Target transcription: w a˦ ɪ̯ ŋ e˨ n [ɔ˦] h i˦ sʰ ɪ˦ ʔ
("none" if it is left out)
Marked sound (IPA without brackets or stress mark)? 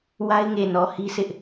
ɔ˨